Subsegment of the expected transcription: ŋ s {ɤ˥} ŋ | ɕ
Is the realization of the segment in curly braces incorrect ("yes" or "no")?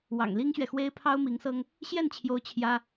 no